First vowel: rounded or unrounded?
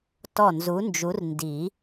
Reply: rounded